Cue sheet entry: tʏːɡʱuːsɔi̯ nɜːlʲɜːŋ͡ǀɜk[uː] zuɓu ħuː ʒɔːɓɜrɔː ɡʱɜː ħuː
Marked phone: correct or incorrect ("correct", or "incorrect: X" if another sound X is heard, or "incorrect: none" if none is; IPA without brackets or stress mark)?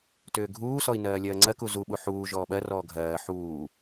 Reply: incorrect: u